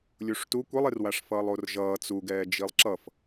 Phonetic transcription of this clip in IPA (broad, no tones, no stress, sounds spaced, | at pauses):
lʲ u ʂ t u kʷ e lˠ e r w a ʂ f ʌː lˠ o r ʒ ʌː t͡s u ɡ ɛː d͡ʒ i lˠ ǁ ʌ f